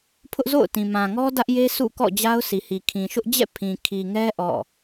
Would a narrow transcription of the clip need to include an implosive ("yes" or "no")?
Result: no